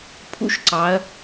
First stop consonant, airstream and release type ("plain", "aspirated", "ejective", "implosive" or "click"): aspirated